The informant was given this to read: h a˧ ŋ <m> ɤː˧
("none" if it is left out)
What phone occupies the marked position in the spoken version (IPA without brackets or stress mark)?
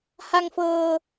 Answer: f